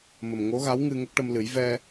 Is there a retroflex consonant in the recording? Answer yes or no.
yes